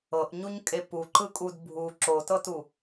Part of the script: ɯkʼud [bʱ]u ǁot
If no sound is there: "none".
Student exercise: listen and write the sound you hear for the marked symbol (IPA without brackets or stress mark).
bʱ